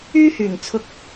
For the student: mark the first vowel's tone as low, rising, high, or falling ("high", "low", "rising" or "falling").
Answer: high